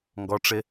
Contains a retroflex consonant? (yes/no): yes